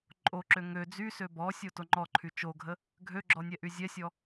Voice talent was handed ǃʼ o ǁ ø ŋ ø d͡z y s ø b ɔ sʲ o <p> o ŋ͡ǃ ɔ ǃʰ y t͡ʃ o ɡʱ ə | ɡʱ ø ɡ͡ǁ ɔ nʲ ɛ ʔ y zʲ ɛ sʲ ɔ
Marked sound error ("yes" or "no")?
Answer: yes